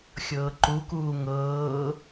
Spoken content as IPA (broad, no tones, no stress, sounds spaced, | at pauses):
xʲ ɤː ǃ u k uː ŋ ɤː